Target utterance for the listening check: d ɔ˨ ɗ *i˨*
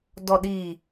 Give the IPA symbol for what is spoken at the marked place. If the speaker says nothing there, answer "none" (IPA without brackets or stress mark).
iː˨